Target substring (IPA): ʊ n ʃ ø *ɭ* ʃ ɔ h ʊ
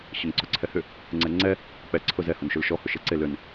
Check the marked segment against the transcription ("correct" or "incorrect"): incorrect